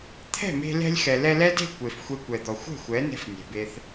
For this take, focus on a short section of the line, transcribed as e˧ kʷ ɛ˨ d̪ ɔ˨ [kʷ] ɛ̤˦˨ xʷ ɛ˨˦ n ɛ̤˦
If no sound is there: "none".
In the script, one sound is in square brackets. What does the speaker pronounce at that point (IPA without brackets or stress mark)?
xʷ